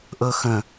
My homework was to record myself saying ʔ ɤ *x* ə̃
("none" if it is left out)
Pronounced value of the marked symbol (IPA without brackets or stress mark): x